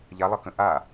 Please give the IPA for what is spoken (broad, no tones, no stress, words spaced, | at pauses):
ʎalˠʌkə̃ ʔa